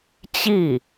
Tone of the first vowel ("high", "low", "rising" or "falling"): falling